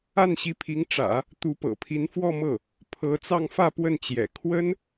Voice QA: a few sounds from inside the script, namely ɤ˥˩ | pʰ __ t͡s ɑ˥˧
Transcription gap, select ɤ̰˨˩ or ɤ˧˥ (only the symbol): ɤ˧˥